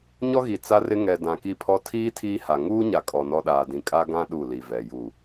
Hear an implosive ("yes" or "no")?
yes